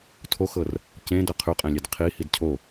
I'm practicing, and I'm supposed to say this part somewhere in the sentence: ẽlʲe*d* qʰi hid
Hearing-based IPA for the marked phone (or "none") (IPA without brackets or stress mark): d